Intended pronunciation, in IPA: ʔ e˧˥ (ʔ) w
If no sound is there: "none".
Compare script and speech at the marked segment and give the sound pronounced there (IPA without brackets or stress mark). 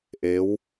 none